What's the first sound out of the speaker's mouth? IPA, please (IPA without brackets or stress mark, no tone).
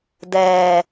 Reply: d